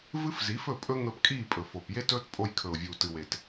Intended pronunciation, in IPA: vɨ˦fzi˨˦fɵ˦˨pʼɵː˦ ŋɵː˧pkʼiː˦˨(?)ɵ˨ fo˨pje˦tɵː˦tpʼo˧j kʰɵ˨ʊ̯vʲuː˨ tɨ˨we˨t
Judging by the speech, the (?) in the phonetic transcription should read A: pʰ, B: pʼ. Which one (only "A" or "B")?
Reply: B